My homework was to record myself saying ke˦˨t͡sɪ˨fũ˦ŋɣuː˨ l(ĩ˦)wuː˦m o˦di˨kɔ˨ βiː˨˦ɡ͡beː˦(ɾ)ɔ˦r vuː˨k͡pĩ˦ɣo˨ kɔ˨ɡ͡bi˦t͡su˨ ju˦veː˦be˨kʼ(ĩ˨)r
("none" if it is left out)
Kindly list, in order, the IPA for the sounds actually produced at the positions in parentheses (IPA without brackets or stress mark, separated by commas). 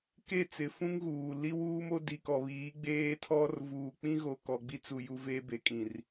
i˦, tʰ, ĩ˨